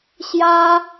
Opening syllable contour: high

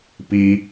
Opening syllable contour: high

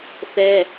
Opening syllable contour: high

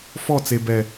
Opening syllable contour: falling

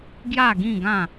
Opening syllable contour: falling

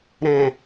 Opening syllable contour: low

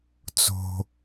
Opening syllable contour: low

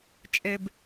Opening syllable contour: low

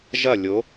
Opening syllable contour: falling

